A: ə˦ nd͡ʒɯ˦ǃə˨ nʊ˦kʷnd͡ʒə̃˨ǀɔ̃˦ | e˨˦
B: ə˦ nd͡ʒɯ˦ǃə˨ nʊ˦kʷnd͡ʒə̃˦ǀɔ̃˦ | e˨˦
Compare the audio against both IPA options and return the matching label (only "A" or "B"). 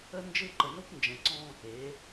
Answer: A